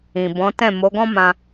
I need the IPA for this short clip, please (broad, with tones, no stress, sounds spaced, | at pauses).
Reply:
ĩ˨ b ɔ̃˨˦ t ɛ̃˦˨ m o˨˦ ɡ ɔ̃˦ m ã˧